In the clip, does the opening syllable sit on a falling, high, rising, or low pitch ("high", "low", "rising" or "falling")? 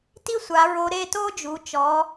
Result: high